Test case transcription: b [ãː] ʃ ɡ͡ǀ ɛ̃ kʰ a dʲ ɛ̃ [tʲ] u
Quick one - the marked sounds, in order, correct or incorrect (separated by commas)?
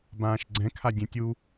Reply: correct, correct